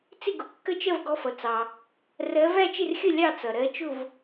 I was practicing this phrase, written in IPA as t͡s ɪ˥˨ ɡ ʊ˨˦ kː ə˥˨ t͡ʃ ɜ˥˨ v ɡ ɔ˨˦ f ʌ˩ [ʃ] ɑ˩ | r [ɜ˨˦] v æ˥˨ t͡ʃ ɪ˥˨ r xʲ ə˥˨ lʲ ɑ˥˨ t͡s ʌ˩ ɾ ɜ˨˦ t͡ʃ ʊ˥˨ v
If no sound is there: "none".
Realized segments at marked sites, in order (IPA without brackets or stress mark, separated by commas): t͡s, ɜ˨˦